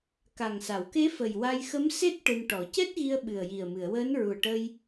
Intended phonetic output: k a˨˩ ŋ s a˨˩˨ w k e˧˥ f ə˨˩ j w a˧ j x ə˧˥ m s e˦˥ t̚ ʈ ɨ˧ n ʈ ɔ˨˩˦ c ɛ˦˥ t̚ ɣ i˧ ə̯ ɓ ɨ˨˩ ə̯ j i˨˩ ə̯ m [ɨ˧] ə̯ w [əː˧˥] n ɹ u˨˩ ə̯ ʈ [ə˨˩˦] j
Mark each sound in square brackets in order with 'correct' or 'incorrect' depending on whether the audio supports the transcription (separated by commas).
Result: incorrect, correct, incorrect